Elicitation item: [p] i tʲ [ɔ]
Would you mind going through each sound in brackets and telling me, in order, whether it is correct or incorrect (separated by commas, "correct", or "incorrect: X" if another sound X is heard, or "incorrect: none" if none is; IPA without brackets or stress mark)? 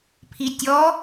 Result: incorrect: pʰ, correct